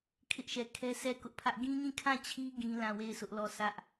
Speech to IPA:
kʰ ɪ˦ ʔ ʃ ɛ˨ kʰ ɛ˦ sʰ ɛ˦˨ k ʊ˦ ʔ pʰ ä˦ ʔ ɡ ĩ˦ ɲ ĩ˦˨ kʰ ã˦˨ t͡ɕʰ i˦ ɡ ĩ˦ l ã˦˨ w e˦˨ ɪ̯ s ʊ˦ ʔ l ɔ˦˨ sʰ ä˦ ʔ

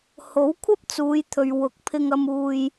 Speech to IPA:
h o˨˥ w kʷʰ ɐ˥ p̚ t͡s uː˨˧ j t̪ʰ ɵ˨ ɥ w ʊ˨˥ k̚ pʰ ɪ˧ ŋ ɐ˧ m uː˧ j

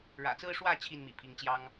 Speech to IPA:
ɻ ä̰˨˩ t͡s ɹ̩˦ ʂ w ä˥˨ t͡ɕʰ i˥˨ n m ḭ˨˩ pʰ i˨˦ ŋ t͡ɕ j ɑ˦ ŋ

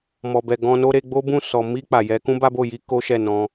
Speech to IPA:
m ɔ˨ b ɛ˨ ɡ ɔ̃˧ n o˦ ɾ e˧ ɡ͡b o˦ b ũ˦˨ s ɔ˨ m i˧ k͡p a˨ j ɛ˨˦ k ũ˦ b a˦ b o˦˨ j i˧ k o˦ ʃ ɛ˦˨ n ɔ̃˧

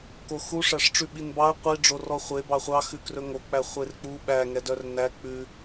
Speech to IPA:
k o x u ʂ æ ʂ ʈ͡ʂ ʉ ɓ i n b ɑ ə̯ qʷ i ɖ͡ʐ o r ɔ χʷ e b ɑ χʷ ɑ x ʉ k r ɵ ŋ o k͡p æ χʷ e r k͡p u ɓ æ ŋ ɛ d œ r n æ k͡p ʉ

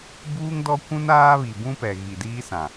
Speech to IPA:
b uː˦ ŋ d ɔ˦ kʷ ũ˦ n aː˦ β i˨ b ũ˦ p ɛ˨ ɣ i˨ d iː˦ s ã˨

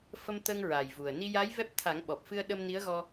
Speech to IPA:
f ə˧ m t̪ ə˧ ŋ ɹ a˨˩ j v u˨˩ ə̯ n i˧ j a˧˥ j v ɛ˦˥ p̚ t̪ʰ a˨˩˦ ŋ ɓ ɔ˨˩ p̚ f ɨ˧ ə̯ ɗ ə˧ m n i˧˥ ə̯ ɣ ɔ˧

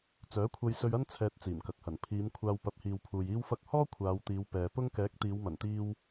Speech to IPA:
t͡s œː˨˥ kʷʰ ɐ˧ j s ɵ˧ ɥ ɐ˥ n t͡sʰ ɛː˧ t̚ t͡s iː˨˩ m k ɐ˨ k̚ h ɐ˨˩ n pʰ iː˨˧ m kʷʰ aː˧ w p ɐ˨˥ p̚ h iː˨ w pʰ uː˨ j iː˧ w f ɐ˧ k̚ h ɔː˥ kʷʰ aː˨˧ w t̪ iː˨˧ w p ɛː˨ p ʊ˥ ŋ k ɛː˨˥ k̚ t̪ iː˨˧ w m ɐ˨˩ n t̪ iː˧ w

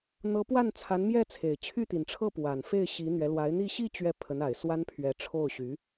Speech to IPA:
n̪ ɤ˧˥ p w a˥˩ n t͡sʰ a˧˥ n m j ɛ˥˩ t͡sʰ e˨˩ ɪ̯ t͡ɕʰ y˥˩ t̪ i˨˩ n ʈ͡ʂʰ ɤ˥˩ p w a˨˩ n f e˥˩ ɪ̯ ɕ i˧˥ n̪ ɥ ɛ˧˥ l w a˧˥ ɪ̯ n̪ i˥˧ ɕ i˥˧ t͡ɕ ɥ ɛ˥˩ pʰ ə˧˥ n a˨˩ ɪ̯ s w a˥ n pʰ ɥ ɛ˧˥ ʈ͡ʂʰ o˥˩ ʊ̯ ɕ y˧˥

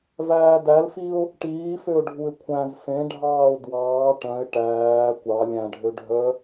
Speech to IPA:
v æː d æ l f i ʊ̯ | ʈ iː f ø ʊ̯ ɖʱ u ɪ̯ kʷʰ æ̃ z f ẽ ɖʱ ɑː ʊ̯ d w ɑː ʈ œ̃ ɪ̯ ʈ æː kʷ ɑ lʲ æ̃ ɖʱ ø ɖʱ œ

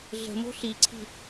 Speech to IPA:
ɮ ə̤ m o̤ ɬ i ǀʰ i̤

